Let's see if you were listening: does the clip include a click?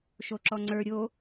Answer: yes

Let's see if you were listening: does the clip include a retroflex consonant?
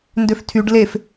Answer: yes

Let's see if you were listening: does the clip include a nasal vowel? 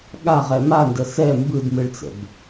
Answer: no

